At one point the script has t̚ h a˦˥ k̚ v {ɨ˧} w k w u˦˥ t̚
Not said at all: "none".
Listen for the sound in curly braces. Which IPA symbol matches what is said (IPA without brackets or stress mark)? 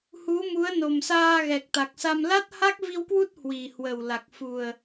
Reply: i˧